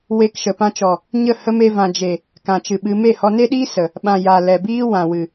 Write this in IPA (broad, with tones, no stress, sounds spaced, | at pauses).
w e˧ k ʃ ə˨ p ã˧ t͡ʃ ɔ˨ | ɲ ə˦˨ h ə˦ m e˧ v ã˨ d͡ʒ e˨ | k ã˨ t͡ʃ ɨ˨ ɓ ɨ˧ m e˦˨ h ɔ˧ n e˦ ɗ iː˦ s ə˨ | ɓ ã˨ j a˨ l ɛ˨ b iː˦ w ã˨ w ɨ˨